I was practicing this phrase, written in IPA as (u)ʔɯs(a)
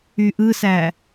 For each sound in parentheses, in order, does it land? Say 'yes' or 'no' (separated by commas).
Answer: no, no